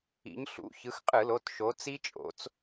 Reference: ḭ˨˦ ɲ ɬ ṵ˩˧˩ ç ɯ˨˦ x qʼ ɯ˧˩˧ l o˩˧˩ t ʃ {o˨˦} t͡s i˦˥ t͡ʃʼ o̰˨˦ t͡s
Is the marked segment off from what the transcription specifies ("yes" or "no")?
no